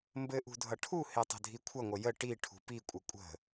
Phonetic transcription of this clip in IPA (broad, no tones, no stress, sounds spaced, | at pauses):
m b ɘ ʔ ṳ dʱ ʌ ʈʰ u h e tˤ ə̤ dʱ i kʷʰ ʌ ŋʷ ə j ə ʈ i ʈʰ ṳ p i kʷʼ ə kʷʼ ə̤